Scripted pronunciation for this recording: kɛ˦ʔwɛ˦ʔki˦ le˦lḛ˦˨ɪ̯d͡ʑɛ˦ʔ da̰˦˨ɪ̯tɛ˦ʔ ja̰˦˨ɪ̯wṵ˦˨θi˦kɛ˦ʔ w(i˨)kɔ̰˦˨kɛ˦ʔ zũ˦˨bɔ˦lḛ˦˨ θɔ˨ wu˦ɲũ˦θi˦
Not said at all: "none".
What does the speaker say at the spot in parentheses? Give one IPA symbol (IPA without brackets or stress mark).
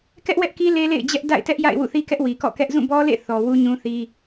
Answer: i˨